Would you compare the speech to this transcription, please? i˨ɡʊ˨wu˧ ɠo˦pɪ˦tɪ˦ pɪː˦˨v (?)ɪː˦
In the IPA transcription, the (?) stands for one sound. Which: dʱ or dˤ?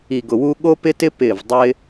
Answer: dˤ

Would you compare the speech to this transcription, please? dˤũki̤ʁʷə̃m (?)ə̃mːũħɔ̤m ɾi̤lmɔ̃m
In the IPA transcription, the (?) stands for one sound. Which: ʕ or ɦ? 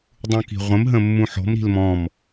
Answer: ɦ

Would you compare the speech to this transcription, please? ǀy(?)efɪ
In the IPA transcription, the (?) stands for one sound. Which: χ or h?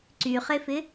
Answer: χ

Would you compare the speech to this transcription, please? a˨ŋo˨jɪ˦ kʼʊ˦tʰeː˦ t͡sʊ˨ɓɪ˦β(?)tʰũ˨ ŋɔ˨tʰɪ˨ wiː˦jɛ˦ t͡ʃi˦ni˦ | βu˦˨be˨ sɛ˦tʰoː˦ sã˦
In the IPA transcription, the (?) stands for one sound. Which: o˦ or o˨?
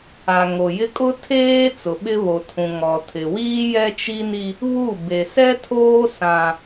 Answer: o˨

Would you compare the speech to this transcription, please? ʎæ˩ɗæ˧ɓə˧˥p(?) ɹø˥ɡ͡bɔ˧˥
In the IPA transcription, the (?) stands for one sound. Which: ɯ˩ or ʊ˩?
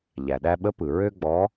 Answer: ɯ˩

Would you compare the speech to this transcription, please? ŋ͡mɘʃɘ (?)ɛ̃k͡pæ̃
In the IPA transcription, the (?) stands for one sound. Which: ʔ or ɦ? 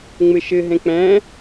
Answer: ɦ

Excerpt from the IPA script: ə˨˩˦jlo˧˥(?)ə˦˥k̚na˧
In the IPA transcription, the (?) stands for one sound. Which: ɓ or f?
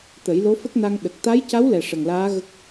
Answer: f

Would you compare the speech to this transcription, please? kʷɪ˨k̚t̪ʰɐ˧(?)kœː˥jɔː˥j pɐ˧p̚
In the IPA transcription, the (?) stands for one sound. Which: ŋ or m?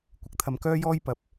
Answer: m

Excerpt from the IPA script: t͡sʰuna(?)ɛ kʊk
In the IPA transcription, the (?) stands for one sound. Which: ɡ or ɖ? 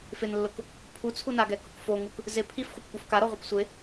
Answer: ɡ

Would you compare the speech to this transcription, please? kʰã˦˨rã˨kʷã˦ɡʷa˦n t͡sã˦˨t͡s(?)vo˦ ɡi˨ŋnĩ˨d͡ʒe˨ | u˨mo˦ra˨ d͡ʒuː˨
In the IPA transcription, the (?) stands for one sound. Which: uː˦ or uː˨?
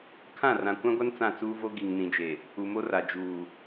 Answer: uː˦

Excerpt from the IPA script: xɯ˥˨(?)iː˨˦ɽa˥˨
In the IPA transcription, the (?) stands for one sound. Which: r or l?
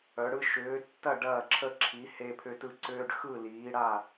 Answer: l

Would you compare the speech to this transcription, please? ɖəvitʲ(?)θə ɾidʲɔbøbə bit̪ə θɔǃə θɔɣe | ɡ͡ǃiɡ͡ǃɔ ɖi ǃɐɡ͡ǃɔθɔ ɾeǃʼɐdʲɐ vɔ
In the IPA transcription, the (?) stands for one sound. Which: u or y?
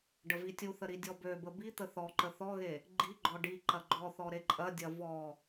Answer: u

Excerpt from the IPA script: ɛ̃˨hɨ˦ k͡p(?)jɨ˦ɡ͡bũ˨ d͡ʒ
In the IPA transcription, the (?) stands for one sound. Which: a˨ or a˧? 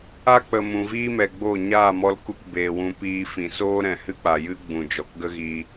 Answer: a˨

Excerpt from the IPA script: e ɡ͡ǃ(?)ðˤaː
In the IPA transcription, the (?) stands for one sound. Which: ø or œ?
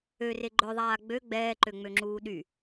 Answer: œ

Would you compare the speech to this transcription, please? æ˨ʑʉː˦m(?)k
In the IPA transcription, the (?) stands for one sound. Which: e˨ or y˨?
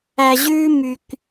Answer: y˨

